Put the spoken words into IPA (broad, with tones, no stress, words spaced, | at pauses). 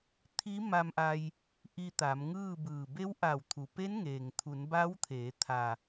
t̪ʰi˧˥ma˧mʔa˧j | ʔi˧t̪a˩˧mŋɯː˥˨bɯː˧˩ be˧˥wʔa˧˩wt̪ʰu˩pe˧˥n ŋeː˩ŋt̪ʰu˩˧n ba˧˥wt̪ʰeː˩˧ t̪ʰa˩